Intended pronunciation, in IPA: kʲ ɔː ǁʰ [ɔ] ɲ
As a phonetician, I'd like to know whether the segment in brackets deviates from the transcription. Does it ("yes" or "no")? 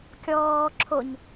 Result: yes